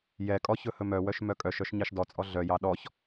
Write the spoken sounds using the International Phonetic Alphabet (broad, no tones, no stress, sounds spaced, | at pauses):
j ɛ kʼ ɔ ç ɵ h ɵ m œ w œ ʃ m œ kʼ œ ʃ œ ʃ ɲ ɑ ʃ d ɔ t͡sʼ ɔ ɮ œ j ɑ ɗ ɔ ç